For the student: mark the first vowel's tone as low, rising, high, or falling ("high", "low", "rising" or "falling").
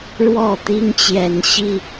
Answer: falling